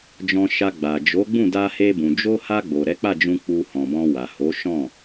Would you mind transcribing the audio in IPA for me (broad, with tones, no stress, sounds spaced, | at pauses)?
d͡ʒ ɔ̃˧ ʃ a˧ ɡ͡b a˨ d͡ʒ o˨˦ ɡ͡b ũ˦˨ d a˧ h e˧ b ũ˨ d͡ʒ o˧ h a˧ ɡ͡b o˨ ɾ ɛ˨˦ k͡p a˦˨ d͡ʒ ũ˧ k͡p u˧ h ɔ̃˨ b ɔ̃˧ w a˨ h o˨˦ ʃ ɔ̃˦˨